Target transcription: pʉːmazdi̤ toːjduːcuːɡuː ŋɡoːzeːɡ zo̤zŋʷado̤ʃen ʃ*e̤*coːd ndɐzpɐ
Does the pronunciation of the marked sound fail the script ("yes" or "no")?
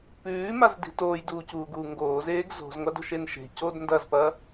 no